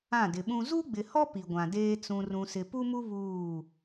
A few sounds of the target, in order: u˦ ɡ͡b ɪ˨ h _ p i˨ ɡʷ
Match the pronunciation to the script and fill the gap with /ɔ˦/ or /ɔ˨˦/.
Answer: ɔ˦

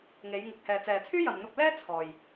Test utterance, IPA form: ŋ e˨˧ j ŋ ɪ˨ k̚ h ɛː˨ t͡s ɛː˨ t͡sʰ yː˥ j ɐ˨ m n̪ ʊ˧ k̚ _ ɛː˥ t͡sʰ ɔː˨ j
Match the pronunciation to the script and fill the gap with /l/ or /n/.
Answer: l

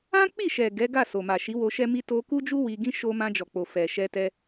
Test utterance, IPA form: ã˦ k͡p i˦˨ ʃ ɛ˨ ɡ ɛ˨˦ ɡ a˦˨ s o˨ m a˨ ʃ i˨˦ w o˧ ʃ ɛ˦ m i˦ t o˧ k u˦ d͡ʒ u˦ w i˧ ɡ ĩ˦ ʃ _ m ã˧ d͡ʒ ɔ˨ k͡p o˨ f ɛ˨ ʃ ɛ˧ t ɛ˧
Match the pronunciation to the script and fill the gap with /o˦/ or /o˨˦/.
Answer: o˦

